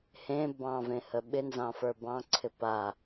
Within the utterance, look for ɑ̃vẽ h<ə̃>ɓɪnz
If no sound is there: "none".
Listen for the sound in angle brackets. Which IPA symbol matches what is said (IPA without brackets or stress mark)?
ə